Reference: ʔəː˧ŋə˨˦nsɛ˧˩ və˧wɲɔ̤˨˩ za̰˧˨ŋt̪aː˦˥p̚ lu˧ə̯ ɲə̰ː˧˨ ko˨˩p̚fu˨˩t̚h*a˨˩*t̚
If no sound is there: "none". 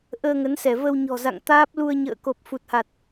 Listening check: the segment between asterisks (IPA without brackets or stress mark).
a˨˩